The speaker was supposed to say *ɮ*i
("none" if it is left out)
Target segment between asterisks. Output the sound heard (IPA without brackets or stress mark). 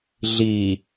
ɮ